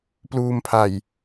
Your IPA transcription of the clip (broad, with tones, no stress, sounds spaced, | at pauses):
p l uː˧ m pʰ a˨˩ j